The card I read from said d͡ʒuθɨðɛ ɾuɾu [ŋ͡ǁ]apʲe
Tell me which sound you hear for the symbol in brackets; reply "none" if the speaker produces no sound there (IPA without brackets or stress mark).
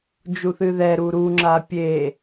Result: ŋ͡ǁ